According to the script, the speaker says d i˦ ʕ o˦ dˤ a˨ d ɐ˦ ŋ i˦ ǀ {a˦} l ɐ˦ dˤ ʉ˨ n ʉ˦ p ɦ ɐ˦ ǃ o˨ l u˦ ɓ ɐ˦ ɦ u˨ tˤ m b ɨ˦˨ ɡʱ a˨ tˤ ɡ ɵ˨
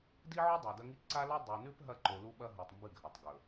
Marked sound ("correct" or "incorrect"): correct